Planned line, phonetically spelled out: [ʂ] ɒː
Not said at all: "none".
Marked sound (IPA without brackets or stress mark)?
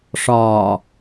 ʂ